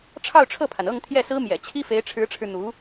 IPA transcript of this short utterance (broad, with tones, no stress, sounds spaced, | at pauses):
ʈ͡ʂʰ ɑ˥˧ ʊ̯ ʈ͡ʂʰ ɤ˥˩ pʰ a˩ n ɤ˥˧ ŋ t̪ʰ j ɛ˥˩ s ɹ̩˥ m j ɛ̰˨˩ t͡ɕʰ i˥ f e˧˥ ɪ̯ ʈ͡ʂʰ ɻ̩˧˥ ʈ͡ʂʰ ɻ̩˧ n̪ u˧˥